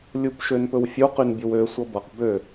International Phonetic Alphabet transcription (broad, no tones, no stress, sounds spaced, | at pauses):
lʲ u p ʃ ø n p ɵ w fʲ u q y n bʲ o w ø sʷ ʌ b ʌ q b ø